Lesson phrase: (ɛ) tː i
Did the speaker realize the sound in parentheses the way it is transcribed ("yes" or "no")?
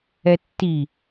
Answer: yes